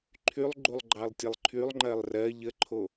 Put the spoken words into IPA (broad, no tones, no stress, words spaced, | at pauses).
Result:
ǃʰylˠ ɡ͡ǃulˠɡ͡ǃɑlˠtʲəlˠǃʰylˠ ŋ͡ǃɜlˠrɜ ʎəǃʰo